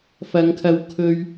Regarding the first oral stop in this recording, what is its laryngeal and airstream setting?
aspirated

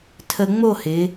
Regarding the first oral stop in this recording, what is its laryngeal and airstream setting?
aspirated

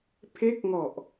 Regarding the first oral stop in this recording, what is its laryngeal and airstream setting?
aspirated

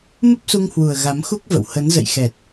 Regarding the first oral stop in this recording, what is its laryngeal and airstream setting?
plain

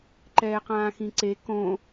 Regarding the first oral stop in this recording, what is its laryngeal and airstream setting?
click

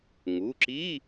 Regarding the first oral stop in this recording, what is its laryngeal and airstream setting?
click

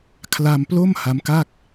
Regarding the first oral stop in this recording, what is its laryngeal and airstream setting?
aspirated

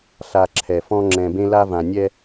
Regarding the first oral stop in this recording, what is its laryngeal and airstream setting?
click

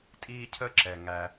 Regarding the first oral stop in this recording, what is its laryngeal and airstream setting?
ejective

